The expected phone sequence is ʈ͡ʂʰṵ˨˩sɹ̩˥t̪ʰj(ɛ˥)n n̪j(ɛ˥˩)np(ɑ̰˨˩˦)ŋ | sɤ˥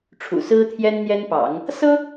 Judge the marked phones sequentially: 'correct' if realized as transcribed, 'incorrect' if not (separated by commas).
correct, incorrect, correct